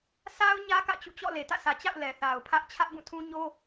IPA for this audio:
sʰ a˦ ʊ̯ ɲ ä˦ k ä̰˦˨ t͡ɕ ṵ˦˨ t͡ɕ ɔ̰˦˨ l e˨ t ä̰˦˨ s ä˨ t͡ɕ a̰˦˨ ʊ̯ l ɛ˨ θ a˨ ʊ̯ pʰ ä˦ ʔ t͡ɕʰ ä˦ ʔ b ũ˦˨ tʰ ũ˦ ɲ o˦

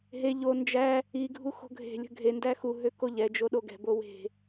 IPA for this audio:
ɦ e ʎ o n d͡ʒ æ | i ɡʱ u x o̤ ɡʱ e̤ lʲ ə̤ ɡʱ e n d æ x u ɦ ø k o ʎ ɛ d͡ʒ o ɗ o ɡ ɛ̤ b o w e̤

